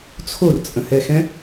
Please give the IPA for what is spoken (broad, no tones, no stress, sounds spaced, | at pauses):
t͡sʰ o r t͡sʼ ə̃ h ɛ x ɛ̃